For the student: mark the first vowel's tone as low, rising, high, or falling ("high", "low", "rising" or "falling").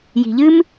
low